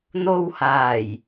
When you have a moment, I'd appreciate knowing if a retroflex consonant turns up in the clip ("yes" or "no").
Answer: no